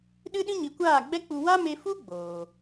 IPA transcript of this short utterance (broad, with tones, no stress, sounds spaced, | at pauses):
ɗ ɨ˦ ɗ ĩ˦ ɲ i˨ kʷ aː˦˨ ɡ͡b ɛ˦ k͡p u˧ w a˦ m e˧ f u˦ ɡ͡b oː˨